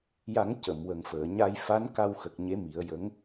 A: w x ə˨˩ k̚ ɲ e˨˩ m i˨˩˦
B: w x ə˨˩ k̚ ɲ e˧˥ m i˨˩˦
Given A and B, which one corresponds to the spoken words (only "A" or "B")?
B